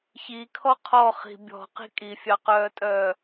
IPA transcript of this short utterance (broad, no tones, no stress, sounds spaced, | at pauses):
ç i kʰ ɔ qʰ ɔ χ i̤ bʲ ɔ̤ q i̤ kʼ i fʲ ɑ q œː tʼ œː